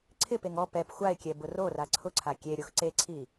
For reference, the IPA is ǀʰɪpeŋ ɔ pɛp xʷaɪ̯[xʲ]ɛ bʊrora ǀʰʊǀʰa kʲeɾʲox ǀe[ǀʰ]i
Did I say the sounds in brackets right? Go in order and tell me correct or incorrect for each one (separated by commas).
incorrect, correct